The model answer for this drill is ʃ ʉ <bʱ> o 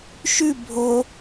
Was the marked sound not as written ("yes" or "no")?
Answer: no